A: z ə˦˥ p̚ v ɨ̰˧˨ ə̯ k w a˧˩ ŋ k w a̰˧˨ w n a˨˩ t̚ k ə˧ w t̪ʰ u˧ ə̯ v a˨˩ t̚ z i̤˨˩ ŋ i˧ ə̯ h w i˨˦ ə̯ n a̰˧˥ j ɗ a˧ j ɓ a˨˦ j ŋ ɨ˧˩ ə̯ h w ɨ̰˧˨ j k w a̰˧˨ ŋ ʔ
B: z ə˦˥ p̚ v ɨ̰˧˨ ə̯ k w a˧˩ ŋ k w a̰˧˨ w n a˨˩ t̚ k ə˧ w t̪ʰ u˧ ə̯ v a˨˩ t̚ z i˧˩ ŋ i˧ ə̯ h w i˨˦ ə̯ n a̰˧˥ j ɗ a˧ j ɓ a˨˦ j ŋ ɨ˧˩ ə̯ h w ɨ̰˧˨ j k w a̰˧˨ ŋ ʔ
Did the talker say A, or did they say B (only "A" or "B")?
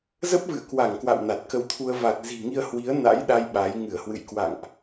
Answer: A